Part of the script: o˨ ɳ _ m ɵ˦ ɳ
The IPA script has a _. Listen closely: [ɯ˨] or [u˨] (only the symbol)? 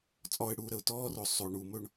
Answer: u˨